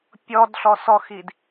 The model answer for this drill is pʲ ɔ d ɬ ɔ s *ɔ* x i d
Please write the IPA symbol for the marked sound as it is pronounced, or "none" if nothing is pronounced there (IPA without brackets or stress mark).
ɔ